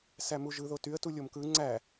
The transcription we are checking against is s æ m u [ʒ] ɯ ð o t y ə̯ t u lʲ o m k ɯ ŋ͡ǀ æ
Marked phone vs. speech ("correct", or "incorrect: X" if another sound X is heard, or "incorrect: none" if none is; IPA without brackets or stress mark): correct